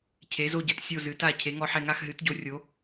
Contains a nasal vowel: no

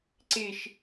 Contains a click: yes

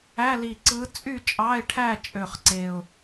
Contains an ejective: yes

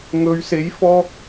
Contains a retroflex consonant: no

